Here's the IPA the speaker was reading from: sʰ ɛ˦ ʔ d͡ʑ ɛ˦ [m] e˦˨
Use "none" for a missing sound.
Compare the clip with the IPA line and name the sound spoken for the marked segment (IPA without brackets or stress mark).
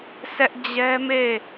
m